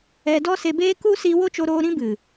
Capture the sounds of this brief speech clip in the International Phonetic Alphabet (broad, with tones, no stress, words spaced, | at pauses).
ɛ˧dɔ˦se˧ beː˦ku˦ siː˧wo˦t͡ʃo˧ɾoː˧ ɾĩ˦bɨ˨